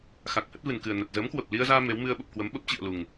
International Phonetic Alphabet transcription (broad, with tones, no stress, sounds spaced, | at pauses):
x a˨˩ k̚ h ə˦˥ t̚ v ɨ˨˩ n k ɨ˨˩ ə̯ n ə˨˩ t̚ z əː˨˦ m k w ə˨˩ p̚ l i˧ ə̯ z aː˧ m e˨˦ w m ɨ˧ ə̯ ɓ ə˨˩ p̚ k w ə˨˦ m ɓ ə˦˥ p̚ t͡ɕ ḭ˧˨ ə̯ l u˨˩ ŋ